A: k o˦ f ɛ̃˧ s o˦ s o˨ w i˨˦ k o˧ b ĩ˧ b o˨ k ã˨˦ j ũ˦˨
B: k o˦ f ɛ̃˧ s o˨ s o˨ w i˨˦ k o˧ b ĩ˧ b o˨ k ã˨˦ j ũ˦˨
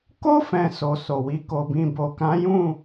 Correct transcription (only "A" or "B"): B